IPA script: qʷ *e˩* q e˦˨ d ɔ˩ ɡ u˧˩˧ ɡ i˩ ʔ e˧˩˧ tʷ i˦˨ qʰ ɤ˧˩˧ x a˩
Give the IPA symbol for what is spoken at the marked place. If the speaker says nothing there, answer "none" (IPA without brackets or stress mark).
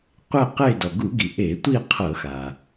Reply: e˦˨